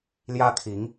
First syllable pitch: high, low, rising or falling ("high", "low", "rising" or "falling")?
high